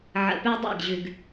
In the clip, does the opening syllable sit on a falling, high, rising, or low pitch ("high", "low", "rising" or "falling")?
low